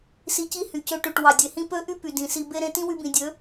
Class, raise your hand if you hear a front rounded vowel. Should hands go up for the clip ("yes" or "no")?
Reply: yes